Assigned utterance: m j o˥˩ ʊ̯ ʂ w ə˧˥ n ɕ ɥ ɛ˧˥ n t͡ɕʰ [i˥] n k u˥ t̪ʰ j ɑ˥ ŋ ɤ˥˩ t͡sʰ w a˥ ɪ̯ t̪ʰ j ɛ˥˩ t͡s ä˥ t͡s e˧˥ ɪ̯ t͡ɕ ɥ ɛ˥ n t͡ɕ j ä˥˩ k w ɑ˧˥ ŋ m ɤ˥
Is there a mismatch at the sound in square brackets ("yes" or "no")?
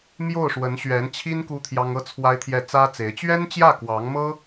no